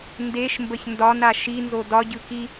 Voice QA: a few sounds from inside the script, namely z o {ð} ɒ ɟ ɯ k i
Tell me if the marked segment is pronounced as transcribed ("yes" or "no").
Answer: no